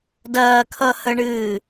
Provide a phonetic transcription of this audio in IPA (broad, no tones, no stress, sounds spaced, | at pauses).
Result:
d ɐː kʰ ʌ h ə ɳ ɨː